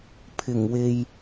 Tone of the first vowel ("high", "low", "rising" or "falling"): low